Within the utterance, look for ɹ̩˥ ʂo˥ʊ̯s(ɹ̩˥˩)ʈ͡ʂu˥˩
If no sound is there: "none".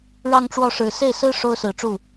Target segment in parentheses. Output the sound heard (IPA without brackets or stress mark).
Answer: ɹ̩˨˩